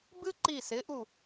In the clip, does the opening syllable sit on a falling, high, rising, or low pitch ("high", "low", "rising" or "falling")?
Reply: high